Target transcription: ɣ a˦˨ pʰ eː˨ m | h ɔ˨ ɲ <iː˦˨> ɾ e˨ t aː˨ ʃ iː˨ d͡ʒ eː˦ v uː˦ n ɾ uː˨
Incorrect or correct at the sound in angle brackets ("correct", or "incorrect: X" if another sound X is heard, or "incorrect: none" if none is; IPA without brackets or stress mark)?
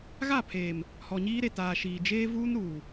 incorrect: iː˦